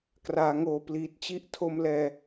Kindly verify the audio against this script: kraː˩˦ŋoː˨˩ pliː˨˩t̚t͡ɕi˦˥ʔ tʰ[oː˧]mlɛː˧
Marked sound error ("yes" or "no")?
yes